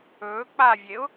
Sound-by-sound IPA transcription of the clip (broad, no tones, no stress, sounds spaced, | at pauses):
ɵː k͡p a vʲ e ʊ̯